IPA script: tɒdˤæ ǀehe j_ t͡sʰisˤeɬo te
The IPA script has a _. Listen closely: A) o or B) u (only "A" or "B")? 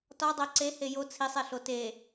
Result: A